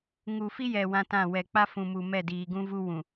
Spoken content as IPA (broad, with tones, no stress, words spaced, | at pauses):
ŋu˨fi˦jɛ˨ wã˦tã˦˨ wɛ˨k͡pa˦fũ˨mu˨ mɛ˦˨diː˨ɡũ˦vu˦ wũ˨